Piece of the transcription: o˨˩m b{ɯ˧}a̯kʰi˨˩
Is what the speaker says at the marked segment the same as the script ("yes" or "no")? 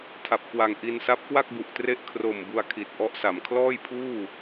no